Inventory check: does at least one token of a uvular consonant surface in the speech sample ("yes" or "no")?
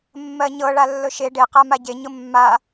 yes